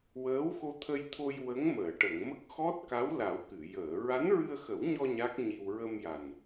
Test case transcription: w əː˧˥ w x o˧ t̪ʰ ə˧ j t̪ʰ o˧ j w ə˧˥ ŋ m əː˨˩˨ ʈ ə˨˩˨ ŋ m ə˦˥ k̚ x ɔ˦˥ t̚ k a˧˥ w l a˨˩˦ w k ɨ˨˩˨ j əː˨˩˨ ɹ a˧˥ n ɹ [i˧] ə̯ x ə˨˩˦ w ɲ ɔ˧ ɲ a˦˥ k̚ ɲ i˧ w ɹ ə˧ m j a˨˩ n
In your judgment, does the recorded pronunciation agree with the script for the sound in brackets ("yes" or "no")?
no